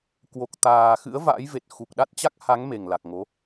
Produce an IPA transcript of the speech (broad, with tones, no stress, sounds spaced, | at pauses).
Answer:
k w o˨˩ k̚ t̪ aː˨˩ x ɨ̰˧˥ ə̯ v a̰ː˧˥ j v e˨˩ t̚ x u˨˩ k̚ ɗ a˦˥ t̚ t͡ɕ a˦˥ k̚ h a˨˦ ŋ m e˨˩ ŋ l a˨˩ k̚ ŋ o˨˦